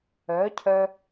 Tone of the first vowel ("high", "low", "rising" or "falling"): rising